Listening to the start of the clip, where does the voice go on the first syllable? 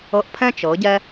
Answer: rising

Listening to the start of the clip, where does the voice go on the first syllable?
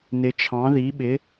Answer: rising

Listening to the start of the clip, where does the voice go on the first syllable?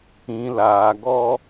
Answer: low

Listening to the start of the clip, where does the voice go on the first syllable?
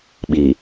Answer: low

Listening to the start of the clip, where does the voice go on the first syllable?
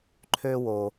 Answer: high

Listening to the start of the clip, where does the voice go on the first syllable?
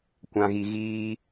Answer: low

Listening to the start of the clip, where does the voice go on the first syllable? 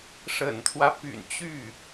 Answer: low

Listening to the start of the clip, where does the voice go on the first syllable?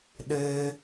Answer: high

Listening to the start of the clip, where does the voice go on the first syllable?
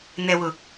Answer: low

